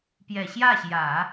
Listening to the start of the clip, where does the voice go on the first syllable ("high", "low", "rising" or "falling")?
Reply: low